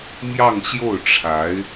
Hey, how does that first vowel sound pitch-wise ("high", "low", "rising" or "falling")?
falling